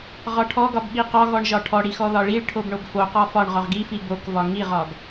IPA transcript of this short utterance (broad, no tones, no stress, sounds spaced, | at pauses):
ʁ ɒ ʈʰ ɔ ɡ ɒ b ɓ i q ɒ ɣ ɔ ɳ ʒ ɒ ʈʰ ɔ ɽ i x ɔ ð ɒ ɭ i ɭ ʈʰ o b ɳ o b f o q ɒ f ɒ ɳ ʁ ɒ ʁ ɡ i f i b o k v ɒ ŋ i ʁ ɒ ɡ